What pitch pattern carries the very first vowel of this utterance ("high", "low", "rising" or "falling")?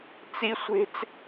high